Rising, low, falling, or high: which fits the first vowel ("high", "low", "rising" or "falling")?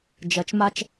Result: low